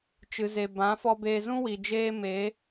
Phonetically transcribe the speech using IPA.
t͡ʃɨ˨ze˨bã˨˦ fɔ˧beː˧ zũ˦wi˨ d͡ʒeː˦ me˨˦

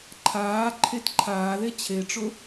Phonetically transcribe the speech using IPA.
ǃʰaː ǃʰetǃʰaːðe t͡ɕʰeʈ͡ʂʊ

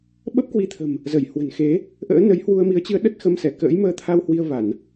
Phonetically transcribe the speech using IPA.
ɓə˦˥p̚kwi˧t̪ʰə̤˨˩m | zə˧˩jhwə̤˨˩nxe˨˦ | ʔə̰ː˧˥nə˨˦j hwu˧ə̯mi˨˦ə̯t͡ɕɨ˨˦ə̯ ɗə˦˥t̚xə˧msɛ˧˩ kə̰ː˧˥jməː˧t̪ʰa˧w hwi˧ə̯va˧˩˨n

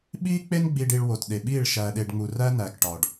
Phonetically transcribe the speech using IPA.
ɓiː˦ k͡pe˦nɡ͡bi˨ɖi˨ɭ wo˨tɗe˨ɓiː˦˨ɭ ʃæː˨ɗe˨ɖŋ͡mu˨ræ˦ næ˨kʈɒː˨ɖ

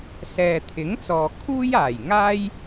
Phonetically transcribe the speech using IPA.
sɛː˨t̪ʰɪ˨˥ŋt͡sɔː˨ kʰuː˥jaː˨˩jŋaː˥j

